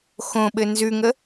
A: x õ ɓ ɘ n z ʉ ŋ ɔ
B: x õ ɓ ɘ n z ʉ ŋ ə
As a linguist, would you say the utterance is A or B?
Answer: B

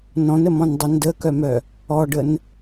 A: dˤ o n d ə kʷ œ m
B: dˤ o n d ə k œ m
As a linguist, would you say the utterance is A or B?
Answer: B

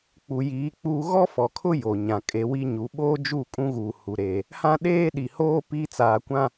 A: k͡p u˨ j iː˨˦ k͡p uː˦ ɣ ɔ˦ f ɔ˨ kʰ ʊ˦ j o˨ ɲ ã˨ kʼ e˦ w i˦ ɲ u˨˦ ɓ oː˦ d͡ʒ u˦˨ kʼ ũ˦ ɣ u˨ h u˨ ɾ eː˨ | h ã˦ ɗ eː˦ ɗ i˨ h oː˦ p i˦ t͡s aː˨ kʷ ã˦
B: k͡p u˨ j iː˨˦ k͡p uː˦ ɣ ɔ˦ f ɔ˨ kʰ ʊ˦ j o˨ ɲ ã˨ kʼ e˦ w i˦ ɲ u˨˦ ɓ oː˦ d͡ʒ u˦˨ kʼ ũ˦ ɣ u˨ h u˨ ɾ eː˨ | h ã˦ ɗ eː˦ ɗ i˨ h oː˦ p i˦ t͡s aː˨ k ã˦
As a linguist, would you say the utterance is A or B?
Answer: A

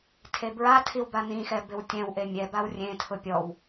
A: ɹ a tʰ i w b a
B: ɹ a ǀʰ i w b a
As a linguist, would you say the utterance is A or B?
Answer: A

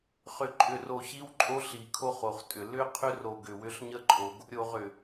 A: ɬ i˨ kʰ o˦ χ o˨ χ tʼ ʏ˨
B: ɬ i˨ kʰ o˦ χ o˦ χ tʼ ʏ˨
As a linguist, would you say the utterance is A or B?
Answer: A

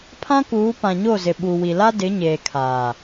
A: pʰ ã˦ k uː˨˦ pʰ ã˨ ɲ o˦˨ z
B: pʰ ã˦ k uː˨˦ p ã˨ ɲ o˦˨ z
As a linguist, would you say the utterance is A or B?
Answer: B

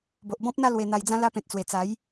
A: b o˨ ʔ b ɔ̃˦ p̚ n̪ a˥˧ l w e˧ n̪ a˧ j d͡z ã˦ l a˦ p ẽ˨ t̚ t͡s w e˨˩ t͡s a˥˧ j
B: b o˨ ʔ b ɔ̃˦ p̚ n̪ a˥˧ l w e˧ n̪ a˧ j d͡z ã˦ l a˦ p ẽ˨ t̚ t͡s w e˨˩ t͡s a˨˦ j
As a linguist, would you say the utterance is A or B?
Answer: B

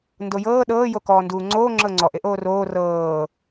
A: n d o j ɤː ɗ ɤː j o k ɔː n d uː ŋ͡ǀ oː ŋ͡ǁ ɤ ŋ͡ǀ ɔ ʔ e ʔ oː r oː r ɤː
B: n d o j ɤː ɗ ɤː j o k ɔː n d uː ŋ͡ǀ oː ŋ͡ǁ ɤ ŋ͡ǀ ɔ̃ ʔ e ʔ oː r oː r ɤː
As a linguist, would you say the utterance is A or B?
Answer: A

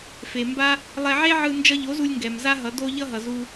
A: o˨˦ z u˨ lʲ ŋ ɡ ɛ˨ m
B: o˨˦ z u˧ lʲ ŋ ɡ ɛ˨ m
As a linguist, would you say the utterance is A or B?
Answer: B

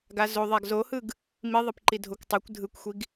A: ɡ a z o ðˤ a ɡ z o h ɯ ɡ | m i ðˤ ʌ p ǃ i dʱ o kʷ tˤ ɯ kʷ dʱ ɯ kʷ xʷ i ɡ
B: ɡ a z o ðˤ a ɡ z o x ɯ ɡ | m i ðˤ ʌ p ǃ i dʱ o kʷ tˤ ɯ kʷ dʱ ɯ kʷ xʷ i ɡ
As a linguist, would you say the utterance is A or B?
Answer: A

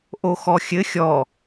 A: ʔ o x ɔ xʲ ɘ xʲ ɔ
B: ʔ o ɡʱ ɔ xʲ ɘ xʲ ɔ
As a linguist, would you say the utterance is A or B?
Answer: A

